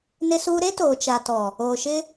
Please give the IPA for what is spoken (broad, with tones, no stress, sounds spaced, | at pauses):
n ɪ˦ s uː˦ ɾ e˦ t oː˨ t͡ʃ a˨ t ɔ˨ | oː˨ ʃ ɪ˦